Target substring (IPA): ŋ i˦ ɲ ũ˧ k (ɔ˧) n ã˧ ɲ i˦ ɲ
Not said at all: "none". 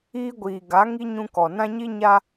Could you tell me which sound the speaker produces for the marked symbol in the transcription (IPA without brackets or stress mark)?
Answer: ɔ˨